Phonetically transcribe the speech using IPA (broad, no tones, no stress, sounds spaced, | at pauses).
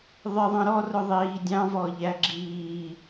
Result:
ðˤ ɪ ðˤ ɑ̃ ɾ ɔ r ʊ ðˤ iː dʲ ɑ̃ v ɔ ʎ æ ɡ͡ǁ iː